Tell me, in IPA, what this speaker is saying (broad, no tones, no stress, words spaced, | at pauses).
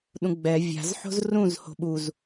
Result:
ɗũɡ͡bɛ vʲa̤z ħo̤zrũz ho̤ɓuz